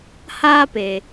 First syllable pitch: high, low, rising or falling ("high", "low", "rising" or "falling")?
high